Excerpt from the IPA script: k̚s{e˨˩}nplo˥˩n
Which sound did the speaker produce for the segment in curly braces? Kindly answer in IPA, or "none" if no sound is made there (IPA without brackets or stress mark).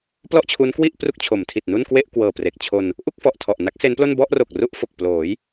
e˦˥